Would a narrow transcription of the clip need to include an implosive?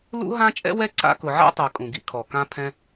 no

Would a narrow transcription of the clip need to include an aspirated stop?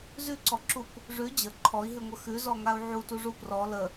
yes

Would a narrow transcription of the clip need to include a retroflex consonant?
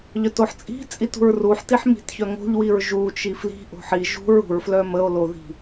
no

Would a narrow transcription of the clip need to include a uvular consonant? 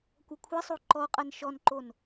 yes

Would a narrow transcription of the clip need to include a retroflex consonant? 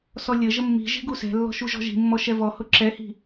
no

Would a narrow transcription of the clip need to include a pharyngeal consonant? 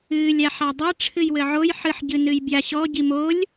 yes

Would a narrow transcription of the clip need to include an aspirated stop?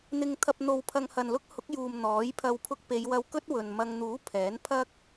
yes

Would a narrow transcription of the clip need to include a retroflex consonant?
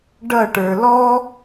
yes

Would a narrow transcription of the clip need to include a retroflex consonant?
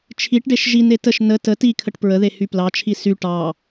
yes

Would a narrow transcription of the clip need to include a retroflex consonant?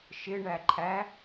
yes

